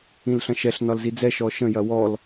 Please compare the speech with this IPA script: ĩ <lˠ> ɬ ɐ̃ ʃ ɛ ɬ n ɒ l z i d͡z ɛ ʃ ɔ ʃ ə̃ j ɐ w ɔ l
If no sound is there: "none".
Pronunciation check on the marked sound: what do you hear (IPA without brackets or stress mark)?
l